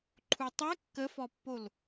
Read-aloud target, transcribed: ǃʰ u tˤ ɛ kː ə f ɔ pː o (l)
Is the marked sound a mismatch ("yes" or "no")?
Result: no